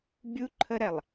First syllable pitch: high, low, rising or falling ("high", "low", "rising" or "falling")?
high